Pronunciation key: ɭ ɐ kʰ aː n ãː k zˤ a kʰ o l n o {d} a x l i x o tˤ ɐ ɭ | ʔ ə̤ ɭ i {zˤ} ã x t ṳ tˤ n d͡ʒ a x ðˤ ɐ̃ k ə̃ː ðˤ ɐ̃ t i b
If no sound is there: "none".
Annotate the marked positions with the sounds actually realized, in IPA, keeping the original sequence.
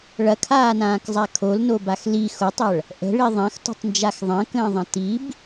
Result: b, ðˤ

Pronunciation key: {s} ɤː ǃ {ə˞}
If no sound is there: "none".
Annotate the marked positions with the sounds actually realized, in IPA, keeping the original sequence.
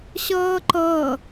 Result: ɕ, ɤ

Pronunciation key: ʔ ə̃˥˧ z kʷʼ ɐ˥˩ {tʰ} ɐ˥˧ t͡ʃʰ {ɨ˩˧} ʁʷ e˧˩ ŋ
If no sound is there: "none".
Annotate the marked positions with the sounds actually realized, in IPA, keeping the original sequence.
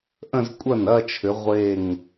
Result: n, ʏ˩˧

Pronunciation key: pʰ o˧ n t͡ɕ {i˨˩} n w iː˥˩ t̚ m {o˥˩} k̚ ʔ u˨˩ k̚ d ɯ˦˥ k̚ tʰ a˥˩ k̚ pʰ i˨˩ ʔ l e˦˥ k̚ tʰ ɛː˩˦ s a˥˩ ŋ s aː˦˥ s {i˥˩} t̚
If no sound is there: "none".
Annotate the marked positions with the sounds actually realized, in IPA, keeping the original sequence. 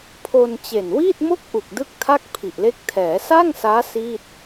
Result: e˨˩, o˥˩, iː˥˩

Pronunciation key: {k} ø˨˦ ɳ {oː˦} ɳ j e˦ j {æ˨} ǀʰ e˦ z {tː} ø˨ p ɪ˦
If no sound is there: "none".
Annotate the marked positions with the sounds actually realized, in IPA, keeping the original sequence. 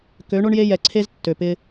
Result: k, o˦, ɛ˨, tː

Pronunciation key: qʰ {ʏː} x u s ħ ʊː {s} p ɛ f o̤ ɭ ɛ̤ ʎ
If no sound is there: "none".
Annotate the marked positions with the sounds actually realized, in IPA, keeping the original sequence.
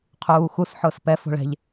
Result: uː, s

